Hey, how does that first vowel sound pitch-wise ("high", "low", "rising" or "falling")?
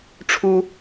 high